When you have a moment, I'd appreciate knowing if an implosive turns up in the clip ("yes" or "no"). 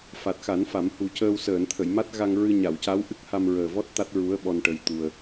yes